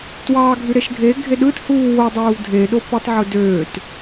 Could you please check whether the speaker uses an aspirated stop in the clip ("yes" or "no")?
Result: no